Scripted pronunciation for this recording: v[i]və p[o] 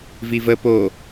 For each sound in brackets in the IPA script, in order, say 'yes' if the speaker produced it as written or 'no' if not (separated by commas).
yes, yes